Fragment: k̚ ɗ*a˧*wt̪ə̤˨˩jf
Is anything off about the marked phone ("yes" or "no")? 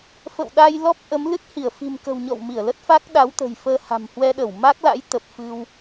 yes